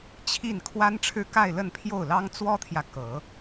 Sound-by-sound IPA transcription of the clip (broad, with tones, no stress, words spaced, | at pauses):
t͡ɕʰi˥˩n kʰwa˥nʈ͡ʂʰɻ̩˥˧ ka˥˧ɪ̯lə˥˧npʰjo˥˩ʊ̯lɑ˥ŋ t͡swɔ˥t̪ʰjä˨ kɤ˨˩˦